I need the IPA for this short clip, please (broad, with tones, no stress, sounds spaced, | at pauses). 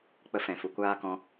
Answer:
k͡p ə˧ f ɛ̃˨ f u˨ kʷ aː˦ k ɔ̃˧